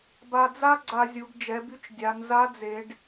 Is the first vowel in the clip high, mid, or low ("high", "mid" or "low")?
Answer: low